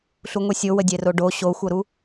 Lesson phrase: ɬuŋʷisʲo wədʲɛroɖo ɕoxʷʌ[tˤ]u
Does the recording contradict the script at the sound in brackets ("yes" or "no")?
yes